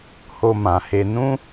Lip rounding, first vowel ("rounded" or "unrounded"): rounded